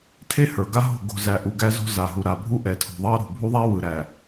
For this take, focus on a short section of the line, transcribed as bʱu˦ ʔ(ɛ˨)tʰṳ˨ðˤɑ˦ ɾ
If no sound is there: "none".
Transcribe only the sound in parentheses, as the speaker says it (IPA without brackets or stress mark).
ɛ˨